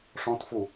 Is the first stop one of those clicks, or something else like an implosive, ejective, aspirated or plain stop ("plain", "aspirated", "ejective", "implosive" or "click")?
plain